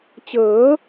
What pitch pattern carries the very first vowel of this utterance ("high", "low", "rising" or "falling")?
rising